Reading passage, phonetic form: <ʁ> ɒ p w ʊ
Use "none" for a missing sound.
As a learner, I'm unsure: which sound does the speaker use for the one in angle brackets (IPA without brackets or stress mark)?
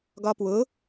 ɡ